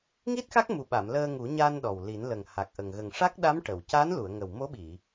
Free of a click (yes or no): yes